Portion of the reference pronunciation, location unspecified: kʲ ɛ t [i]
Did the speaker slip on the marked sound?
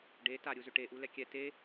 yes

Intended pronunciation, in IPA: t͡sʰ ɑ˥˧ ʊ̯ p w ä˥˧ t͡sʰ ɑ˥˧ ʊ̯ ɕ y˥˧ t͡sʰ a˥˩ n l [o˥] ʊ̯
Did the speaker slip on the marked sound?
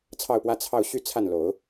yes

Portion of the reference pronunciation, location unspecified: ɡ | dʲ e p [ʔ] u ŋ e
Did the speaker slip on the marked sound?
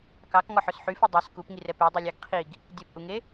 no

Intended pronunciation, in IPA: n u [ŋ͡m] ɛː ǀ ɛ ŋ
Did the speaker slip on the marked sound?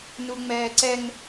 no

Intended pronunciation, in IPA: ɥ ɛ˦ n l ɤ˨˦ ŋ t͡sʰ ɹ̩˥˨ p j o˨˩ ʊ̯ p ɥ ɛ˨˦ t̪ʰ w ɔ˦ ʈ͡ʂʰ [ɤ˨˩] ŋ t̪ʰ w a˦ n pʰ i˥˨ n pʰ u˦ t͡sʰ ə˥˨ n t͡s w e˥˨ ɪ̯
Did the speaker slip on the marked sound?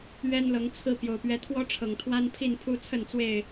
no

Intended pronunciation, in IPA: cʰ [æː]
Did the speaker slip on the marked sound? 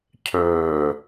yes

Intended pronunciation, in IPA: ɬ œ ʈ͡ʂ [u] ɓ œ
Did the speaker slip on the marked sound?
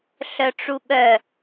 no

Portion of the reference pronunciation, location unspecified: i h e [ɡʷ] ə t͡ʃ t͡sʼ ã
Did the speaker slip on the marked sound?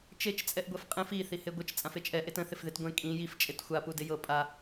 no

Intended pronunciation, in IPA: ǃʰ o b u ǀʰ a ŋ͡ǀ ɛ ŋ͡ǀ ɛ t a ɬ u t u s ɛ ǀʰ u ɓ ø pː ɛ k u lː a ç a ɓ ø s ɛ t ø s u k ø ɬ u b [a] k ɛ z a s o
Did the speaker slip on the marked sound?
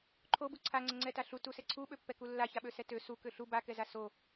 no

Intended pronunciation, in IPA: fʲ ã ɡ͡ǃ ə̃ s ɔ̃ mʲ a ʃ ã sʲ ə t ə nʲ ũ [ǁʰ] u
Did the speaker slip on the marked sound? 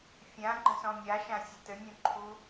yes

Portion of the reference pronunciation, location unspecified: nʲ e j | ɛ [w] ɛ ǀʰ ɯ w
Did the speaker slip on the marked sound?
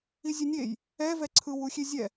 yes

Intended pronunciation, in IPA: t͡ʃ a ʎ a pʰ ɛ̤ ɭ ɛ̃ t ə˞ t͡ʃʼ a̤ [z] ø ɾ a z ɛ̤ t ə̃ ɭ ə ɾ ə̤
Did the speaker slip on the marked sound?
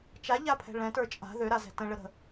yes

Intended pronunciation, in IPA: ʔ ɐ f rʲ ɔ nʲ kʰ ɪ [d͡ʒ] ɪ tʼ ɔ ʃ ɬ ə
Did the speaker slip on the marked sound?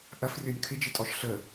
no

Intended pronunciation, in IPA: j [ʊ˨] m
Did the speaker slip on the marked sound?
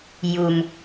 yes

